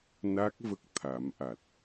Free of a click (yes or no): yes